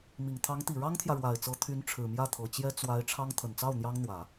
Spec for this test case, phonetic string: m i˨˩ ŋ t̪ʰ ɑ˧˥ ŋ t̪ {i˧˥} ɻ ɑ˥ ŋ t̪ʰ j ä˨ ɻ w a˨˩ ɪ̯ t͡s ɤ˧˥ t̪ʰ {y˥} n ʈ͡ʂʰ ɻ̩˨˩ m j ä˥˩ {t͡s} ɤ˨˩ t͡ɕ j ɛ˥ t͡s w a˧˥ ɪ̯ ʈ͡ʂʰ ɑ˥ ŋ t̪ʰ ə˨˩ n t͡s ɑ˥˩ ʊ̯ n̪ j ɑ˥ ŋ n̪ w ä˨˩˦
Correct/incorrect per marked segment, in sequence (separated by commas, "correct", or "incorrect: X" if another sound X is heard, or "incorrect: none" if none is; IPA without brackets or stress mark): incorrect: i˨˩, incorrect: y˧˥, incorrect: t̪ʰ